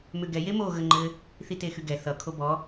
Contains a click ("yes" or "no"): yes